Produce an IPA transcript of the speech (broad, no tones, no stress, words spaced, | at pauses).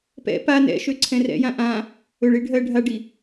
pɛ̰ pa nɛ̰ ʃøǀʰɛ̃rɛ̰jã ʔã | ɵɭi ɖʱɜ ɖʱaɖi